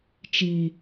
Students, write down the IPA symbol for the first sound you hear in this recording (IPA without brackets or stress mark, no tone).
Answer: t͡ʃ